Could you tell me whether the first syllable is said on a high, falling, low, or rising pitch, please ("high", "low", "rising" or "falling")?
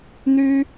high